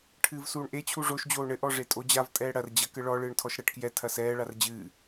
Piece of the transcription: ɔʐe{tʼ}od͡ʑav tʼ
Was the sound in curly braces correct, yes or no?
yes